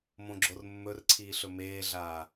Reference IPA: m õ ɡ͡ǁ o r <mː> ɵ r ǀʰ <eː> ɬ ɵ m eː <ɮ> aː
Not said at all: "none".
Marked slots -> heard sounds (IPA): mː, iː, ɮ

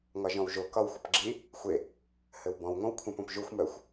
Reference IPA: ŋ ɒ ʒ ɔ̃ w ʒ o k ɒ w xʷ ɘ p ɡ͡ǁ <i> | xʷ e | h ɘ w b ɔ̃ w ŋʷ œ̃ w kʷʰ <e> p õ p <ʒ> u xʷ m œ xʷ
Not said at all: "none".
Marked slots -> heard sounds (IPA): i, ẽ, ʒ

